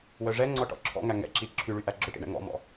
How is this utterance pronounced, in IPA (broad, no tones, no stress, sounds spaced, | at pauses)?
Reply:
w œ ʐ ɛ ŋ͡ǀ ɔ ʈ ɔ̰ ǁʰ ɔ̰ ŋ æ ŋ ɛ̰ ǁ i ǁʰ y ɭ y ʔ æ ɡ͡ǁ ɵ ʈ ḭ ɳ ɛ̰ ŋ ɔ̰ m ɔ̰